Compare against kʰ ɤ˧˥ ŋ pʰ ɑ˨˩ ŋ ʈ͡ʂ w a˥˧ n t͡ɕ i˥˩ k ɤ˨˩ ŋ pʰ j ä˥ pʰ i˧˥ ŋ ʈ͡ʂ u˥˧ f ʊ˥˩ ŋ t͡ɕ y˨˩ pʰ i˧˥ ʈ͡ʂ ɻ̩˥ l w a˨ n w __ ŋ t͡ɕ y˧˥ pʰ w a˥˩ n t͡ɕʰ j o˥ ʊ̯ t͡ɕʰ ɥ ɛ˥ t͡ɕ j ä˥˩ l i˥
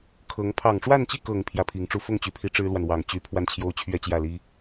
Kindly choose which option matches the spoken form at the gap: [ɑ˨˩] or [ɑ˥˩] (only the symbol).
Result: ɑ˨˩